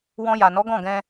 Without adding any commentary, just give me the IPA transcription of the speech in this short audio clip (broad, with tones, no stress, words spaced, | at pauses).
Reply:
wɔ̃˧ja˨ nɔ˨˦ɡɔ̃˦˨ɡɛ̃˧